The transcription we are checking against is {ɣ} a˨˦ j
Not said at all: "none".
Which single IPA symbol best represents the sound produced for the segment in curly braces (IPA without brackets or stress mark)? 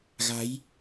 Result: ɣ